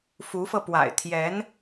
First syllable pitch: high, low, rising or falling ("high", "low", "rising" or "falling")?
rising